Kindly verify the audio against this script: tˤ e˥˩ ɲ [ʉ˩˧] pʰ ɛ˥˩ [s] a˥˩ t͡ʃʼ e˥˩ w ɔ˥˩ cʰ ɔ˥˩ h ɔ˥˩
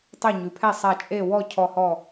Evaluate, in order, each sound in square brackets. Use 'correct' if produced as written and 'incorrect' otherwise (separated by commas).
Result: correct, incorrect